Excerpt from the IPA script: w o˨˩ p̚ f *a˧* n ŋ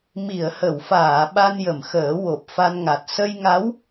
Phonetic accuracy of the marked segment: correct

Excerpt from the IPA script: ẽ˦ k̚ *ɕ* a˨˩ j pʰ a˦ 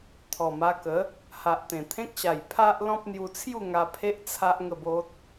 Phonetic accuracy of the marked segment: correct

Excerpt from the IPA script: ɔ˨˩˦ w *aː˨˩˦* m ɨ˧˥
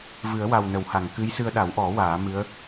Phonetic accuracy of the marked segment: correct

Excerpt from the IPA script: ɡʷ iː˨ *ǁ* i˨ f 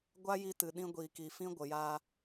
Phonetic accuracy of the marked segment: incorrect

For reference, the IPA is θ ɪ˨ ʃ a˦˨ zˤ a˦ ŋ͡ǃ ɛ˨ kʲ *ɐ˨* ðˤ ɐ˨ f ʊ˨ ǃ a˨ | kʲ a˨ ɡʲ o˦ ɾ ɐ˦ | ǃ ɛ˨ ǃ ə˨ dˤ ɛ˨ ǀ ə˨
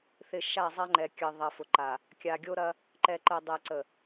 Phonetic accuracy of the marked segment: incorrect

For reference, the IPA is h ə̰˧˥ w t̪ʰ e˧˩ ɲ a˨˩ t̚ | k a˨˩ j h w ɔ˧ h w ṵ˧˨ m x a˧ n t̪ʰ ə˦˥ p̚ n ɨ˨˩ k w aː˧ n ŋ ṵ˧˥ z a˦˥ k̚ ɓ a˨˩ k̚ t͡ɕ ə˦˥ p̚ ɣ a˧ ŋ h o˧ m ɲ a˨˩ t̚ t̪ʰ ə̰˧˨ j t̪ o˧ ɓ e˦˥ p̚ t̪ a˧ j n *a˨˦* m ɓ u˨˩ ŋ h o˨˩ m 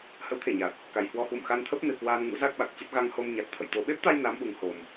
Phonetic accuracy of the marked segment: correct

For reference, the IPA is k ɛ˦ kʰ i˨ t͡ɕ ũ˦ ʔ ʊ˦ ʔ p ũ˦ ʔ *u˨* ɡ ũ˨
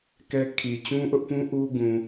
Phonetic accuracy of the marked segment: incorrect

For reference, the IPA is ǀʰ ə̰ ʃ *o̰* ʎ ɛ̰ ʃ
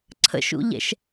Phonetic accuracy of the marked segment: incorrect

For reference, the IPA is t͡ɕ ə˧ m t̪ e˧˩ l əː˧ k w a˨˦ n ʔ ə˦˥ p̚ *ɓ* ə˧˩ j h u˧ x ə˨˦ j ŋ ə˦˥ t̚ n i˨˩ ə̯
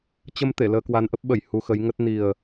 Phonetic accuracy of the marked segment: correct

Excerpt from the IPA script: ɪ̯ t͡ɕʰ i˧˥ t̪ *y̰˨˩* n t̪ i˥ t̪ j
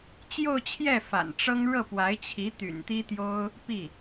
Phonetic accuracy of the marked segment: correct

